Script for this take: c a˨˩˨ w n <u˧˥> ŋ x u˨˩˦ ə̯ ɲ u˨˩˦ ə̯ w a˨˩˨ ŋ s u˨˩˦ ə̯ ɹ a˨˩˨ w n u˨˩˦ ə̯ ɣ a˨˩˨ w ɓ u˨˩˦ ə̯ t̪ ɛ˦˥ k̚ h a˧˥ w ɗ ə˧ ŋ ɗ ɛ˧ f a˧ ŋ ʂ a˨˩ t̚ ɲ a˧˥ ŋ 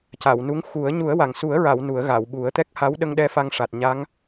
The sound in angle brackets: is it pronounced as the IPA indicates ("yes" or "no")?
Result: yes